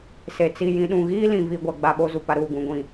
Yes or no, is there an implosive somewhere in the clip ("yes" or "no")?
yes